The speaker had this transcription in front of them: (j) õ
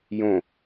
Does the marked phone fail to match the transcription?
no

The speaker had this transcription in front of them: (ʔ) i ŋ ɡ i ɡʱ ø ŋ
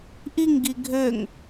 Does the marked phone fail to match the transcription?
no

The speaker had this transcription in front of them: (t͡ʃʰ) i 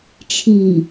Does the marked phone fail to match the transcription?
no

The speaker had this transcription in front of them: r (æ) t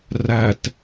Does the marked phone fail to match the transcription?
no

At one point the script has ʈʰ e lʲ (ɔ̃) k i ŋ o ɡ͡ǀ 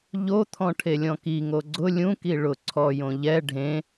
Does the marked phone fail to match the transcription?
no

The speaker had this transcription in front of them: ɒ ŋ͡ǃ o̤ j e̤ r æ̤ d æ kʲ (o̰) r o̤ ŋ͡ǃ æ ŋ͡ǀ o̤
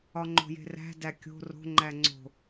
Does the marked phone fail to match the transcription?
yes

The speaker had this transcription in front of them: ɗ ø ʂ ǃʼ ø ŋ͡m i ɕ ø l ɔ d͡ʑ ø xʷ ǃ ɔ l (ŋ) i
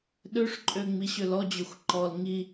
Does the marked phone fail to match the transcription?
no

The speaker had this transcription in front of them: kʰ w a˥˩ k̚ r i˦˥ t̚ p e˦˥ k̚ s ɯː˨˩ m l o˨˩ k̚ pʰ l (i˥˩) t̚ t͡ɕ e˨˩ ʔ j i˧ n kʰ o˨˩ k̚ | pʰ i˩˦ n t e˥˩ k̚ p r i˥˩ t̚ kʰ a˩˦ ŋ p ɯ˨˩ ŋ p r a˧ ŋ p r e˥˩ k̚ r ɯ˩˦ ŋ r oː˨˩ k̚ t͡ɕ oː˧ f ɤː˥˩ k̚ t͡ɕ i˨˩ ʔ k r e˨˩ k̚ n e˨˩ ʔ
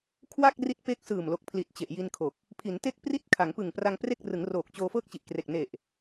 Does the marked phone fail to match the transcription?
yes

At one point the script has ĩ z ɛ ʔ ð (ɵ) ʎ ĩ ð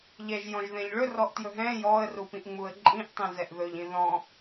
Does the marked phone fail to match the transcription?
no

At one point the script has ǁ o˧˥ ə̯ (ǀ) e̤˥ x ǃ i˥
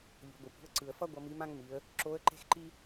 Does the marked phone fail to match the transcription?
yes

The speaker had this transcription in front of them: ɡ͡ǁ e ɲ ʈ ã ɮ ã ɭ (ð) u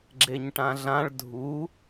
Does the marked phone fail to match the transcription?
yes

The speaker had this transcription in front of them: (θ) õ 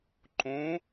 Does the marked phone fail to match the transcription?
yes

